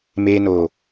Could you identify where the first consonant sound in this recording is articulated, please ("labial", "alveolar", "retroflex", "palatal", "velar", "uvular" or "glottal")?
labial